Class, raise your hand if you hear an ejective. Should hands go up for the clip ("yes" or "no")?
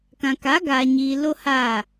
no